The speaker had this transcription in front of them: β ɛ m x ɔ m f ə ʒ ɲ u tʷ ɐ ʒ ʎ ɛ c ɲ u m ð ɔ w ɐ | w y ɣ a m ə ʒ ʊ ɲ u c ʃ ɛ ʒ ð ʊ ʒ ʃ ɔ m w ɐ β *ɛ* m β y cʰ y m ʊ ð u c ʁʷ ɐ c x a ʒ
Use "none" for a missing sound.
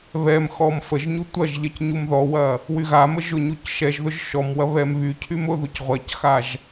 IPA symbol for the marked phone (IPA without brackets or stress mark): ɛ